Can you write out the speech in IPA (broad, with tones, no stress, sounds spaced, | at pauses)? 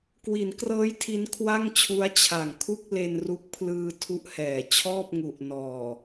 k w i˩˦ n k r ɤː˦˥ j tʰ i˦˥ n kʰ w a˥˩ ŋ t͡ɕʰ u˦˥ a̯ t͡ɕʰ a˨˩ ŋ kʰ u˥˩ k̚ l e˧ n r u˦˥ k̚ pʰ l ɯː˧ tʰ u˦˥ ʔ h ɛː˨˩ t͡ɕʰ ɔː˥˩ p̚ ŋ u˨˩ ʔ n ɔː˨˩